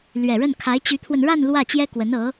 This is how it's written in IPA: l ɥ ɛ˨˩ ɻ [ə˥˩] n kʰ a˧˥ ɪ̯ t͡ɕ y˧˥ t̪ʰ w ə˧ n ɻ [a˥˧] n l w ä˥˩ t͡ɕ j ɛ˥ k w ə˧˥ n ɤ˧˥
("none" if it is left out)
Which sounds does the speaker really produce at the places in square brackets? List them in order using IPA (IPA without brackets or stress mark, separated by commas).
ə˥˩, a˥˧